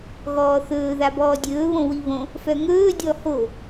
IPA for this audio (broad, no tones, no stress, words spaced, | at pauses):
ɣɔːθɵː ðabɔːdʲɵː βõwiβõ | fœŋɵː dʲɔho